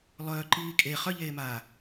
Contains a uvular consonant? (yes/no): yes